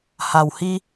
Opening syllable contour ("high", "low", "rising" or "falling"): low